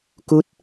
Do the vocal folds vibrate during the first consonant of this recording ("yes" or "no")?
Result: no